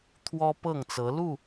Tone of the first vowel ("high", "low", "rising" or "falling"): high